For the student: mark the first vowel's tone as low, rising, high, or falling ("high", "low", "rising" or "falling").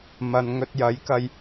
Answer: low